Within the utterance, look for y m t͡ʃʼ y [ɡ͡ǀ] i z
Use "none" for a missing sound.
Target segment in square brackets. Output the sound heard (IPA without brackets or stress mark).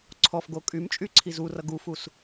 ǀʰ